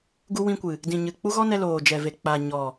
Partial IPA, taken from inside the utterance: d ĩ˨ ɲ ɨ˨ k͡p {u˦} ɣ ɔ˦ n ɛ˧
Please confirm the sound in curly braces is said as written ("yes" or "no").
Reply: yes